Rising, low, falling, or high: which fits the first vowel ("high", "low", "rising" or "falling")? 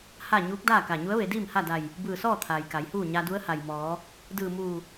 falling